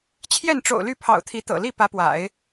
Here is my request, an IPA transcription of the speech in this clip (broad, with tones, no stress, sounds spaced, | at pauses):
t͡ɕʰ j ɛ˥˩ n ʈ͡ʂ o̰˨˩ ʊ̯ l y˥˩ pʰ ɑ̰˨˩ ʊ̯ t̪ʰ i˧˥ t̪ ɤ̰˨˩ l i˥˩ p ä˧˥ p w a̰˨˩˦ ɪ̯